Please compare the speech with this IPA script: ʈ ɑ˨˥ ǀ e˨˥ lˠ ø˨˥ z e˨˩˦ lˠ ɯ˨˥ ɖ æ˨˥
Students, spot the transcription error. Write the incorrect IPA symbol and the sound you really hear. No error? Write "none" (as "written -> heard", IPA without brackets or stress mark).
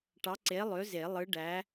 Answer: none